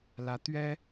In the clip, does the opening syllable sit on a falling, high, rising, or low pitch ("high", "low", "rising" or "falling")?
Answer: rising